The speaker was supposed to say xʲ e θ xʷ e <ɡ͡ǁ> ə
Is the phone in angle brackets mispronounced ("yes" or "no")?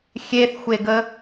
yes